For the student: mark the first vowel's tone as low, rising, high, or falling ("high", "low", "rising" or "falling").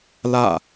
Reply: falling